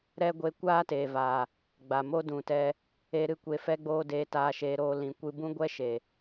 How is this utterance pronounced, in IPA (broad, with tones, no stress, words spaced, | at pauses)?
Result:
ɾɛ˦ɡʷe˧ kʷaː˦teː˨vaː˨ | ɡ͡ba˨mo˦dũ˨tɛ˧ | e˧ ɾɨ˦˨kʷe˧fɛ˦ɡ͡boː˦ deː˧taː˧ʃeː˧ ɾoː˦lĩ˧ kʷɨ˧bũ˦ɡʷɛ˦ ʃe˨